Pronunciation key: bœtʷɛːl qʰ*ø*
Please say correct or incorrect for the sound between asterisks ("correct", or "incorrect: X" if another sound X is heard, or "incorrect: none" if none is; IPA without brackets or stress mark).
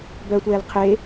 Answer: incorrect: e